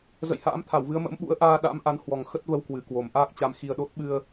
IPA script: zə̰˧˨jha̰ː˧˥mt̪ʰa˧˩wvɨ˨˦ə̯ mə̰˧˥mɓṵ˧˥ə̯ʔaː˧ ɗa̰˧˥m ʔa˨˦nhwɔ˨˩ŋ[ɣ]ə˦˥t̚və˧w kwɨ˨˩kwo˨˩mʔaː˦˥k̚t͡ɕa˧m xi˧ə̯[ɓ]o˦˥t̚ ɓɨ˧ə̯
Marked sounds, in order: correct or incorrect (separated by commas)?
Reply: incorrect, incorrect